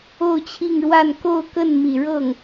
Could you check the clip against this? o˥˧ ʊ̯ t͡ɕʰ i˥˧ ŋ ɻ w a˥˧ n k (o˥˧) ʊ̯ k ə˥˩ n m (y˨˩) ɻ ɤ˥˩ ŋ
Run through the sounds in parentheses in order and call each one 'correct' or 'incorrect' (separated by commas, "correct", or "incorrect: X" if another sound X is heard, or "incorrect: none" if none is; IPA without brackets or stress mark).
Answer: correct, incorrect: i˨˩